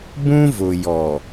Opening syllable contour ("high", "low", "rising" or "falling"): high